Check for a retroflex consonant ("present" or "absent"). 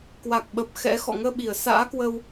absent